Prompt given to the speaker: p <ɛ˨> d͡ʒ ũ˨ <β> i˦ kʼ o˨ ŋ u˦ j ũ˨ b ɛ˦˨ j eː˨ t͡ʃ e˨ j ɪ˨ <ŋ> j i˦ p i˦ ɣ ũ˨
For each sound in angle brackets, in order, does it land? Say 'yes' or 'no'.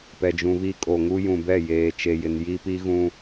yes, yes, no

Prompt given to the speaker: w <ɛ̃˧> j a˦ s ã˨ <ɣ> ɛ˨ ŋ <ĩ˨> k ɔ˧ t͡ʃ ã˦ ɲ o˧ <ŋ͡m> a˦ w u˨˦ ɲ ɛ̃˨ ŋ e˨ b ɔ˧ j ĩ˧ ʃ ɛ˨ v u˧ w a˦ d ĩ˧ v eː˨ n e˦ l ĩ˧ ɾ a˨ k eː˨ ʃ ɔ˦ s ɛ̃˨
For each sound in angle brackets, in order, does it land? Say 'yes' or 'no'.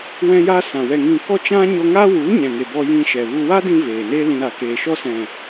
no, no, yes, no

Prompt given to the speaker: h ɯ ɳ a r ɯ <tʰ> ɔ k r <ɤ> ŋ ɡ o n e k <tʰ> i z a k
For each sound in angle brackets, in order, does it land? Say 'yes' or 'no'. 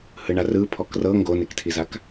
no, yes, yes

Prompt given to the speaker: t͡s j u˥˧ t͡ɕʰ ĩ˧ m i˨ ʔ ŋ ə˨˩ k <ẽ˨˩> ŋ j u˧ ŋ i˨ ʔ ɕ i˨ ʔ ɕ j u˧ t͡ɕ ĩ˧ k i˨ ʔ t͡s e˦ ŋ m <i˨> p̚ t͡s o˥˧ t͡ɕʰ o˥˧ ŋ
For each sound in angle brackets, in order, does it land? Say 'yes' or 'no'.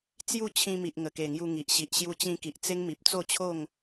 no, yes

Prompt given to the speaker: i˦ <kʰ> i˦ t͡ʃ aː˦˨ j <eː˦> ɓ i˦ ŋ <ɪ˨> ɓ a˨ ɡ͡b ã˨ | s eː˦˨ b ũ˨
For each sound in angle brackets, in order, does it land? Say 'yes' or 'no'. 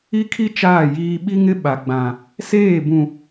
yes, no, no

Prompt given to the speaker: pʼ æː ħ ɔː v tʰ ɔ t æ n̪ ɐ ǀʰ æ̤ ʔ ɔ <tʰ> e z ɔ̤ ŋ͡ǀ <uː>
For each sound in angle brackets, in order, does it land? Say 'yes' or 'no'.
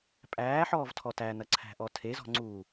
yes, yes

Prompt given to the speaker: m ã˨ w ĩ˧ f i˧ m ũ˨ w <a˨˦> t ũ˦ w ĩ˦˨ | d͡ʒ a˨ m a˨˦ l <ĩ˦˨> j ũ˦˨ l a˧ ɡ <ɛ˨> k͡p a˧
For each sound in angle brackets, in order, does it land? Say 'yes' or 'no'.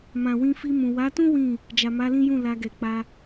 yes, no, yes

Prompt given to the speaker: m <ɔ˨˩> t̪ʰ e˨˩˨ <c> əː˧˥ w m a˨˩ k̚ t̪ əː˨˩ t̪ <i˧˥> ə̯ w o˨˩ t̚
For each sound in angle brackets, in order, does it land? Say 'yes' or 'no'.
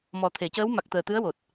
yes, yes, no

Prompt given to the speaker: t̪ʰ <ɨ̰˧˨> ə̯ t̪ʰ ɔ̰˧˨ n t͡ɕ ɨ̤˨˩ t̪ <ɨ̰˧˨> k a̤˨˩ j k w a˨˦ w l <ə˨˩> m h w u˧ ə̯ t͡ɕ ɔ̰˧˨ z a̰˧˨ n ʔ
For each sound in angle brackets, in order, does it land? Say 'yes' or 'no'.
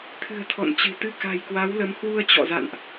no, no, no

